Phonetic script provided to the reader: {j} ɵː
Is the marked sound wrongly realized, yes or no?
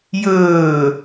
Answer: no